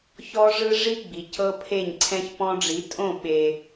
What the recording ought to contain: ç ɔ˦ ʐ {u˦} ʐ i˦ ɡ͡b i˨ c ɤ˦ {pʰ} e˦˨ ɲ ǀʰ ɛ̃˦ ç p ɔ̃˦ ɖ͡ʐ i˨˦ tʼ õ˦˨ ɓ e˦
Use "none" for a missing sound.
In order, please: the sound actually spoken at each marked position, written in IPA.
ɯ˦, pʰ

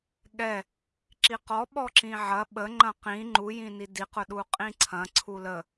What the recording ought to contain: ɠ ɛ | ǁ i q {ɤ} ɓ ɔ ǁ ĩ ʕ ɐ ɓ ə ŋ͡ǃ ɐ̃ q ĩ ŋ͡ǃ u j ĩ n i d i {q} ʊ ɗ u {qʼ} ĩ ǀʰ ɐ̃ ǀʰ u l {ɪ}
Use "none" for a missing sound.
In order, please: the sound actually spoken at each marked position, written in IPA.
ɔ, q, qʼ, ə

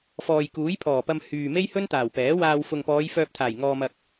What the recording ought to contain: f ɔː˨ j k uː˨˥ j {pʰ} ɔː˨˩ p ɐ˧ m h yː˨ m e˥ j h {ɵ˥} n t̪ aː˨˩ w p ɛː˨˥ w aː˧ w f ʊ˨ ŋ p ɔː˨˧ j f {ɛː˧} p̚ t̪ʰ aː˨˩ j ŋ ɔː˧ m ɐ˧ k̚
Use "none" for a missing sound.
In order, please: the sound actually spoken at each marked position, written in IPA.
pʰ, ɵ˥, œː˧

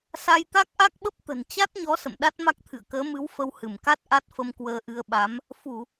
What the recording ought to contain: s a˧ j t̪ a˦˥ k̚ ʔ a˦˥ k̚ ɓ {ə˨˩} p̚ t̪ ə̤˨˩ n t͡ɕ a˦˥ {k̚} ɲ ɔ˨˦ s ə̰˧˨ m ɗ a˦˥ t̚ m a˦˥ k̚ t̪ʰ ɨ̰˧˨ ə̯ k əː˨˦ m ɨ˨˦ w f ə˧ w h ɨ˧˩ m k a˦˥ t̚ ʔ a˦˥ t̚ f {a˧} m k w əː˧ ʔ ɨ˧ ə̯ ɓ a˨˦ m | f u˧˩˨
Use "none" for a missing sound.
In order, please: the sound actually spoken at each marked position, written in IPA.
ə˦˥, t̚, ə˧

